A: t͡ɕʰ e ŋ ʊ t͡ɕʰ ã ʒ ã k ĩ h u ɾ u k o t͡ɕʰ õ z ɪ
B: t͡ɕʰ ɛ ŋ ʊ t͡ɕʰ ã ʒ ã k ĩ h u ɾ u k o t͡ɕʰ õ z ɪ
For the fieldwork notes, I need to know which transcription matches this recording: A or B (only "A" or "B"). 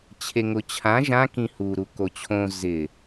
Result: A